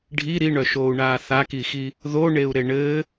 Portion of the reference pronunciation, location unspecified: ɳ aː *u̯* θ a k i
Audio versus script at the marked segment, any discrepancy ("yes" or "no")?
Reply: yes